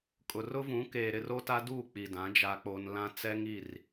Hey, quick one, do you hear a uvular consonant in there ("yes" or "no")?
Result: no